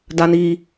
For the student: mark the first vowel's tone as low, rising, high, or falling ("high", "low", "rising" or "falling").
low